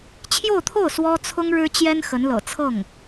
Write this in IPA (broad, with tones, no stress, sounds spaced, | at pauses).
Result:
t͡ɕʰ j o˥˧ ʊ̯ t̪ʰ o˥˩ ʊ̯ s w ɔ˥ t͡sʰ ʊ˥ ŋ ɻ ɻ̩˥ t͡ɕ j ɛ˥ n x ə˧˥ n l ɤ̰˨˩ t͡sʰ ɤ˥˩ ŋ